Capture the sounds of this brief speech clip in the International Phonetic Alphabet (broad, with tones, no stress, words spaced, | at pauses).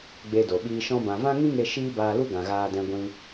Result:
ɡ͡be˧do˨ɓiː˧ ʃɔ̃˧bã˨ vã˦ŋĩ˦ŋe˧ ʃiː˦baː˧lu˦ ɡã˨ɣaː˧dɛ̃˧ ɡʷĩ˧